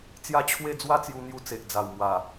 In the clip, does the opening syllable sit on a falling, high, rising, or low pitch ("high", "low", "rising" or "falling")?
falling